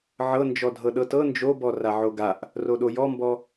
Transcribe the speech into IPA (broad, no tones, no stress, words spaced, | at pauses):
ʕɤnd͡ʒɔdʱɤ ɗɤtɤ nd͡ʒobɔ raʕoɡaʔ | roɗojɔmbɔ